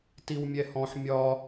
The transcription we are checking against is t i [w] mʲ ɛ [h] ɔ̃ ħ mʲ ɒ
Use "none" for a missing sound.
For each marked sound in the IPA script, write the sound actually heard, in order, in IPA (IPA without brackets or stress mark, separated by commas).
w, h